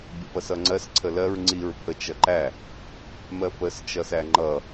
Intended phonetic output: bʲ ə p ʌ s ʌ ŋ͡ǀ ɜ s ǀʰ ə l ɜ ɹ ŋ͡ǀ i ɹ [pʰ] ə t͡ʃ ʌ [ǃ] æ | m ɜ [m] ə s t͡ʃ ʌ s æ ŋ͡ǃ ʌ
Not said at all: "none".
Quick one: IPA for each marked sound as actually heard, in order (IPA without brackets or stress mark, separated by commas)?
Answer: pʰ, ǃ, p